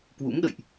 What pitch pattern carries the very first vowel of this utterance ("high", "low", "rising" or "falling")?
rising